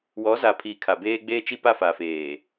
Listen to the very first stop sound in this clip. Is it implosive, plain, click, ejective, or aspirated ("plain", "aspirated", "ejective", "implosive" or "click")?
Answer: aspirated